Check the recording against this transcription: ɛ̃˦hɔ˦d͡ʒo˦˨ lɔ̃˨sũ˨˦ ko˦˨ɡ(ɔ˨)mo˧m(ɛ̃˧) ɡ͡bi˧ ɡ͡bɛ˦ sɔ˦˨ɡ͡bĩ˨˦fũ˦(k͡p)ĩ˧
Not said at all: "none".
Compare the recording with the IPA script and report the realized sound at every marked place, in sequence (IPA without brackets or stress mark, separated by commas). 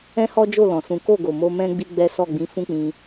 o˨, ɛ̃˦, k͡p